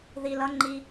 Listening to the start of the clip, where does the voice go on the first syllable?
low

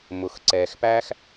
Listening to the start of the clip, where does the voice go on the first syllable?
low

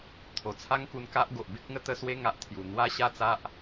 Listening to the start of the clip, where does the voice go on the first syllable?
low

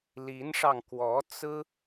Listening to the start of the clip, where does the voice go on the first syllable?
rising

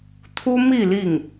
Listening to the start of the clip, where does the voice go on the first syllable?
high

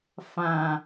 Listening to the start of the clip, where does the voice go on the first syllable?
low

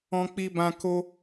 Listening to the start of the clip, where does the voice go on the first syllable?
high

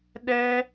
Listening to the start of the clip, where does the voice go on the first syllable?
high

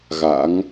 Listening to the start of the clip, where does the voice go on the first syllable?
rising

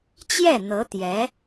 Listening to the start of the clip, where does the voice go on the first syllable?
falling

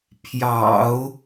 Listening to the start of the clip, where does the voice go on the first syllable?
low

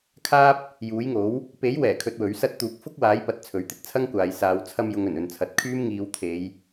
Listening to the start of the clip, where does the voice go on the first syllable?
high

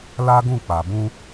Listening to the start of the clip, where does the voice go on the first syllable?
high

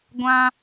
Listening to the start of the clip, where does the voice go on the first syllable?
high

